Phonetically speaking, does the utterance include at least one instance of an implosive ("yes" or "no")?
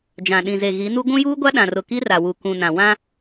yes